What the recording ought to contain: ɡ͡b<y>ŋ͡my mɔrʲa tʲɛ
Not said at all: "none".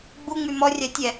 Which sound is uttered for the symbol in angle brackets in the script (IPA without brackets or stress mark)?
u